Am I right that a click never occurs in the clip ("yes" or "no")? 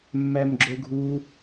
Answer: no